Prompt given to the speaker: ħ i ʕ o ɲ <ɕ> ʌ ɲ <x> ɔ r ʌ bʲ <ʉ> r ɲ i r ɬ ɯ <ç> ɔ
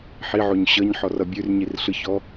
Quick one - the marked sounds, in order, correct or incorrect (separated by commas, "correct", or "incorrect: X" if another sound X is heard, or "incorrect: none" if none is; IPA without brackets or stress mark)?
correct, incorrect: ħ, correct, correct